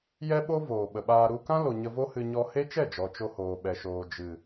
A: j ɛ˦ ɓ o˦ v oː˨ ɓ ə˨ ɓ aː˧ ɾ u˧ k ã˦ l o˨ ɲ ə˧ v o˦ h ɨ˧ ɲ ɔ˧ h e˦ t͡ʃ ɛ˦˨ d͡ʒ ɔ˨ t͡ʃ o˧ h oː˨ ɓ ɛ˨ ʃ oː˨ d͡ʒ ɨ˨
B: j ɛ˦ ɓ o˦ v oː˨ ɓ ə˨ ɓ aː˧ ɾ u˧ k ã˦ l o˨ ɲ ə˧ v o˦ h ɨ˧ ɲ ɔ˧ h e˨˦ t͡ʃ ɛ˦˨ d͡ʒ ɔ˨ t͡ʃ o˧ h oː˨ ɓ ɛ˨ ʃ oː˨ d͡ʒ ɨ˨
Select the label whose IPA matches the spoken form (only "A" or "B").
A